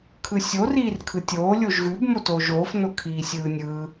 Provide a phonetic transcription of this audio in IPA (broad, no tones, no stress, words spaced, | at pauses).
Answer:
kʰɯsʲo riːrkʰɯtʲoː lʲoʒɣʉb motoːʒoːf nokʰiːsʲɯːnʲɯː